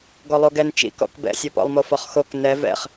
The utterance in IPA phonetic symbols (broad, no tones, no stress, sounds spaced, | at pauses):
ɡ ɔ lˠ o ɡ ɛ n t͡ʃ ḭ k ɔ̰ k b ɛ̰ sʲ o p ɔ̰ lˠ m o f ɒ χ x o k n ɛ v ɛ̰ χ